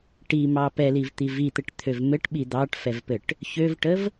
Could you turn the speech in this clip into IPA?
ʈ i m ɑ p ɛ l i v t̪ i v i t̪ ɘ ʈ t̪ʰ ø v m ɘ ʈ ɓ i d̪ ɑ ʈ f ɛ v p ɘ ʈ | ç ø v ʈ ə v

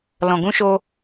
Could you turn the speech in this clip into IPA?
l ɔ̃˨ ɡ ũ˦ ʃ o˧

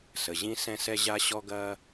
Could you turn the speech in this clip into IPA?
s ə˩ ʑ ĩ˦ s ɛ̃˦ s ɛ˦ ʑ a˦ ɕ ɔ˦ ɡ ɐː˦

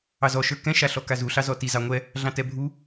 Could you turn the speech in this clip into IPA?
ɑ z ɔ ʃ ə˞ k ɛ̃ ʃ a ɬ ɔ k a z u ɬ ɑ z ɔ t i z ɑ ŋʷ ɛ | ɮ ɑ̃ t ɛ bʱ u

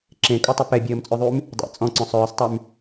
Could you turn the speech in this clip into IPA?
ǁ ẽ kʼ o tˤ ʏ p ɛ bʲ əː m t͡sʼ ø ðˤ y m | dˤ ḛ t͡sʼ ɔ̃ ǀ ɔ̃ sˤ œː sˤ tˤ y m

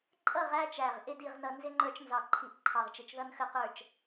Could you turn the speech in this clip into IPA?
ǃʼ ʌ˥˨ ʁ æ˦ t͡ʃ æ˧˩ ʁ ʔ ɪ˥˨ d i˥˨ ʁ n ʌ˦ n z ɪ˦ ŋ͡ǃ ə˞˦ t͡ʃ n z ɑ˧˩ ǃʰ i˧˩ ʔ ǃʰ ɑ˧˩ ʁ t͡ʃ ɪ˧˩ t͡ʃ ð ʌ˦ n x ə˥˨ q ə˞˥˨ t͡ʃ

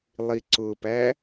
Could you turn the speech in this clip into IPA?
lˠ i ǀ ʊ p æ

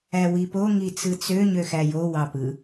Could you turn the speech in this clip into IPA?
æ w i p o ŋ i t͡s ɯ t͡s ø ɲ ø x æ j o w ɑ p ɯ

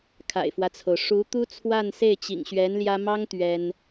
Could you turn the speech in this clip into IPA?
kʰ a̰˨˩ ɪ̯ f w ä˦ t͡sʰ o˩ ʊ̯ ʂ u˧˥ t̪ u˥ t͡sʰ w a˥˧ n s e˥˩ ɪ̯ t͡ɕ ḭ˨˩ ŋ ɕ ɥ ɛ˧˥ n l j ä˥ m ɑ˥ ŋ t̪ ɥ ɛ˥ n

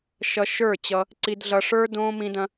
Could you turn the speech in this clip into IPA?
ʃ ʌ˧ ʃ ə˞˦˨ t͡ɕ ʌ˧ | ǀ i˧ d ɮ ʌ˧ ʂ ə˞˦ d õː˦ m ĩ˦ d ɐ̃˦

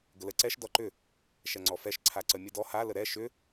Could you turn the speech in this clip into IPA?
ɡ ə l ə ǀ ɛ ʃ d ɔ ǃ ʏ | ʃ ɛ ŋ͡ǀ ɔ f ɛ ʃ ǀʰ a ǀ ə mʲ ə d ɔ h a l ə ɾ ɛ ʃ ʏ

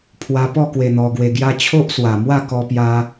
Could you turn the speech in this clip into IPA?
pʰ w a˧ p ɔ˥˧ k w e˧ n̪ ɔ˧ ɡ w e˧ ɡ j a˦ t͡ɕʰ o˦ ʔ s w a˨˩ m w a˥˧ k ɔ˧ p j a˧

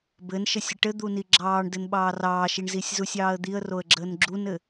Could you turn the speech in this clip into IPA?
b ɘ n ʃ ɘ sʲ ɘ ʈ ɘ d̪ u n i ɡ͡ǁ ɑː ɳ d ɘ n ɓ ɑː r ɑː ʃ i ɳ z i sʲ z u sʲ ɑː ə̯ d̪ i ə̯ r o ə̯ ɡ͡ǁ əː n ɡ͡ǁ u n ɘ

